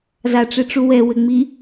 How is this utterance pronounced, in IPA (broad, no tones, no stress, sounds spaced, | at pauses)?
z a ʈ͡ʂ e ʈ͡ʂ u w ɛ w ɘ ŋ͡m i